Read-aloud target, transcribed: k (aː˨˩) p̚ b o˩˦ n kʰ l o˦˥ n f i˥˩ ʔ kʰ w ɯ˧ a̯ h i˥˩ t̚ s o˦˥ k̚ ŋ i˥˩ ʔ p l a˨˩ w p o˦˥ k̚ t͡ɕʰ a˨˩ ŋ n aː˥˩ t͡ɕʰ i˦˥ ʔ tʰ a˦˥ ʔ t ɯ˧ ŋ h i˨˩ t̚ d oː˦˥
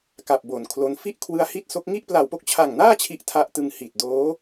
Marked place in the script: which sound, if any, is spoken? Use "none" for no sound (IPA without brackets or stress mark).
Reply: a˨˩